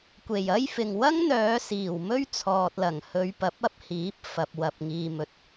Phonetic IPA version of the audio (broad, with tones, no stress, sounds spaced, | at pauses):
kʷ e˨˩ j ɐ˥ j f ɪ˨ ŋ w ɐ˥ ŋ n̪ œː˨˧ s iː˨˩ w m ɵ˥ ɥ t͡sʰ ɔː˨ t̚ l ɐ˨˩ ŋ h ɵ˨˧ ɥ p ɐ˨˥ p̚ ɐ˥ p̚ h iː˨˥ p̚ f ɐ˨ p̚ w ɐ˨ p̚ ŋ iː˨ m ɵ˨ t̚